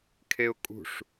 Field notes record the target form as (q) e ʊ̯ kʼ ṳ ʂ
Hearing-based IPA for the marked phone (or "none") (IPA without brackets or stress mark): kʰ